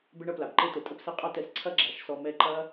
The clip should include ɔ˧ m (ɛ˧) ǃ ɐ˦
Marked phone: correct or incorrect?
correct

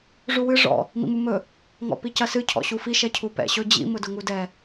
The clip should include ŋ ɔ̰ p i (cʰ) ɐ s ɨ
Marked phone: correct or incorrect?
incorrect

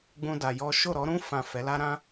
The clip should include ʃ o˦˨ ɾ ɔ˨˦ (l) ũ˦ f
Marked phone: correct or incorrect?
incorrect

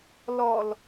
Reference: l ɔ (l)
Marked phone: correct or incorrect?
correct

